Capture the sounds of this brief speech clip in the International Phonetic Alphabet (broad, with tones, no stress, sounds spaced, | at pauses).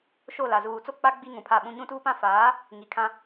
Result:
ʃ o˦˨ l a˨ z uː˨ t͡s o˦ k͡p a˦ ɡ͡b i˦ ŋ ũ˨ pʰ a˦˨ ɓ ũ˦ ɲ ũ˦ t uː˦ p ã˦ f aː˨˦ | ŋ i˨ kʰ ã˦